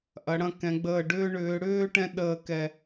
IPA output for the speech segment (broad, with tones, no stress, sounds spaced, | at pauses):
ʔ ɐ˩˧ ɽ ɐ̃˧ k ɛ̃˩˧ ɡ͡b əː˧˩ ɖ ʏː˧ ɳ ʏː˩˧ ɽ ʏː˥˧ ʈ ɛ̃˥ ɗ əː˧˩ k ɛ˧˩